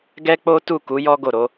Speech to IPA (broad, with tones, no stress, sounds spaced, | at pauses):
ɡ ɛ˦ k͡p o˦ t u˦˨ k u˨˦ j ɔ˦ ɡ o˦˨ ɾ o˨˦